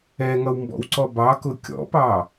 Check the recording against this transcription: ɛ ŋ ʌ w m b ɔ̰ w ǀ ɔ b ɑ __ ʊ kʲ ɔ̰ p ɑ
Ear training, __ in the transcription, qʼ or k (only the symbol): k